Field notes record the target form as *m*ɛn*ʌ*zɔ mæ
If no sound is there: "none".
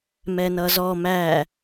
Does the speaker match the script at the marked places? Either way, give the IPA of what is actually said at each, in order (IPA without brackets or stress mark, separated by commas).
m, ʌ